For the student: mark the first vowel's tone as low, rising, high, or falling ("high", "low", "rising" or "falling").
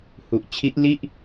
low